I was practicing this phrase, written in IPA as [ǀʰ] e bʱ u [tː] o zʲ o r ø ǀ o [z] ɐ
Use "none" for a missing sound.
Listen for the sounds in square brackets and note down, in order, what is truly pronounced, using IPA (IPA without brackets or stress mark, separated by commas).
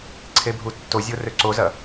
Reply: ǀʰ, tː, z